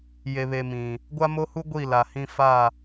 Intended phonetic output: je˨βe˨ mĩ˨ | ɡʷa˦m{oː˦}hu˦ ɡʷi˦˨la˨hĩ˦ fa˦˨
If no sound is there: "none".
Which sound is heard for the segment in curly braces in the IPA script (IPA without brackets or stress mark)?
o˦